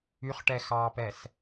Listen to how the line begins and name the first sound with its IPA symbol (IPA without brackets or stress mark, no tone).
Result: y